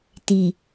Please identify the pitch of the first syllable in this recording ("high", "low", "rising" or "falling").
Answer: low